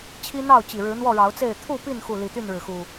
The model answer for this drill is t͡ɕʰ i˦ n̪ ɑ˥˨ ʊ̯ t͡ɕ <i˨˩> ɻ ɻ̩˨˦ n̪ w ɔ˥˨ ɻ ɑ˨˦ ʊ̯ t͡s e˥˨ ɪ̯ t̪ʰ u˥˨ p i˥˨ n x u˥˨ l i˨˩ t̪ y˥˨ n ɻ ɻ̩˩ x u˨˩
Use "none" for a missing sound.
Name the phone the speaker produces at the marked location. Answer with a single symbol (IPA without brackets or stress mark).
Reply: i˨˩